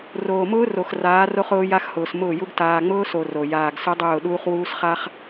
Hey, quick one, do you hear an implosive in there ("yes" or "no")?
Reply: yes